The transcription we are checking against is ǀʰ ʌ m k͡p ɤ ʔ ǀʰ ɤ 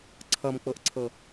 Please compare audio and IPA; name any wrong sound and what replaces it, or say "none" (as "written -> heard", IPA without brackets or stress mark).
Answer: none